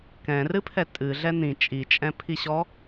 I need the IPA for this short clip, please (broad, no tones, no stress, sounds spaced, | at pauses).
k ɛ̃ r ɨ pʰ ɛ tʼ ɨ ɮ ɛ n̪ ĩ t͡ʃʼ i t͡ʃʼ ɛ̃ pʰ i ɕ ɔ